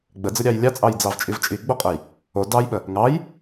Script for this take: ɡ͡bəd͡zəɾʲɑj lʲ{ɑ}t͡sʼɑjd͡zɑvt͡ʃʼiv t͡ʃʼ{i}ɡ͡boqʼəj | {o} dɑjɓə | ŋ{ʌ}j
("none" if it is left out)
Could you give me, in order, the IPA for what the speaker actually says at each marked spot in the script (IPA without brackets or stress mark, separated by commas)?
ɑ, i, o, ɑ